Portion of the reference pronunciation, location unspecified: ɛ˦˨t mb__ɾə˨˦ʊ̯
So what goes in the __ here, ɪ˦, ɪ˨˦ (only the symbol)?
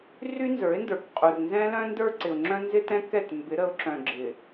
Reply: ɪ˨˦